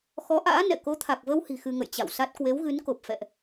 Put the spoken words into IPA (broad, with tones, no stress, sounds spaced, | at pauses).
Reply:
x ɔ˨˦ ʔ a̰ː˧˥ n ɛ̰˧˨ k o˨˦ t̪ʰ a˨˩ k̚ v ə˧ w h i̤˨˩ x ɨ˧ ŋ ə̰˧˨ j t͡ɕ a̰˧˨ w s a˦˥ t̚ k w e˨˦ w ɣ ɨ˨˦ n k o˨˩ p̚ f ɛ̰˧˨ ʔ